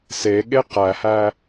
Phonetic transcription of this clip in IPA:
s e ɠ e q æ h æ

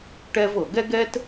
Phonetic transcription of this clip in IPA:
ʈ ɛ˦ v ɤ˨ ɡ ɛ˦ ɡ ɛ˦ t

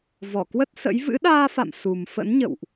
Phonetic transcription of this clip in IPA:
v ɔ˧˩ k w ə˦˥ t̚ s ə̰˧˥ j v ɨ̰˧˥ ɗ aː˧ f a̰˧˨ m s u˨˩ m f ə̰˧˥ n ɲ ə̰˧˨ w ʔ

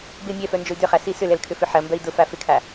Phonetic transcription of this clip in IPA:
b ɪ mʲ ɛ f œ n d͡ʒ ʊ y̯ d ʏ χ a s i s ʏ l ɛ l kʰ ʏ f ʏ ħ ɐ m b œ i̯ d ʊ f a f ɪ kʰ a

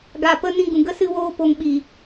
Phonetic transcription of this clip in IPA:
ɡ a˨ p ə˧ n ĩ˧ ɡ ũ˨ ɡ ə˦ s ɨ˦ w oː˦ p o˧ ŋ ɓ i˨

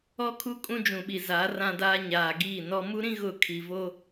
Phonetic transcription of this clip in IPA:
ɔ˦ kʰ u˦ kʼ ũ˦ d͡ʒ ũ˨ ɓ i˨ z a˨˦ r ã˦ d aː˦ ɲ aː˨ ɡ iː˦˨ n ɔ˦ m u˦ ɾ ĩ˦ ɣ ʊ˦˨ kʰ i˨ v o˦

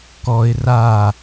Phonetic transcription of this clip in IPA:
k ɔ ɪ̯ r a

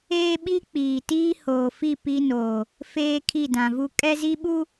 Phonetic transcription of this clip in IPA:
eː˦ ɓ i˦ k͡p iː˨ t iː˦ h oː˨ f i˦˨ p i˦ n oː˨ | f eː˦ kʰ i˦˨ d ã˨ v u˦ kʼ ɛ˦ z i˦ ɓ u˦

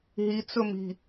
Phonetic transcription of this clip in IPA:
ɦ i t͡s ɵ m i̤

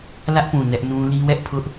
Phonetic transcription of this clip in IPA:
l ä˦ ʔ p ũ˨ n ɛ˦ ʔ n ũ˦ l i˦ w ɛ˦ ʔ pʰ ʊ˦ ʔ

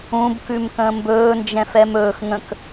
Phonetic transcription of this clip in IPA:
ũ b k ʉ m k ə̃ː m b ɵː n d͡ʒ ɛ̃ f ɛ m ɵː x ŋ ə̃ k

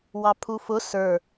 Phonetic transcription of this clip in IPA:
w ɑ pʰ u f ʊ s ə˞

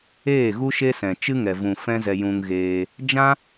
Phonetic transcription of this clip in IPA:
eː˦˨ ɣ u˦ ʃ e˦ s ɛ̃˨ t͡ʃ ɨ˦ ŋ ɛ˨ v ũ˨ f ɛ̃˦ z ɛ˧ j ũ˧ ŋ ɣ eː˧ | d͡ʒ ã˦

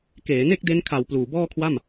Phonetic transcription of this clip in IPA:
k eː˩˦ n e˥˩ k̚ d e˦˥ n kʰ a˨˩ w p l uː˨˩ b ɔː˥˩ kʰ w a˥˩ m

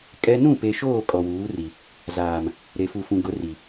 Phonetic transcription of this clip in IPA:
kʼ ɛ˦ n ũ˦˨ p e˨ ʃ oː˦˨ kʼ ɔ˨ w uː˨˦ r i˨ | z aː˨ m | ɾ e˨ f u˨ f ũ˨ ɡ ʊ˨˦ r i˨

